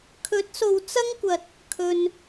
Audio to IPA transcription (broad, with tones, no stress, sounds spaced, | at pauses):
kʰ ɵ˨˥ t̚ s o˨ w t͡s ɐ˥ ŋ kʷ ɐ˨ t̚ | kʰ ɵ˧ n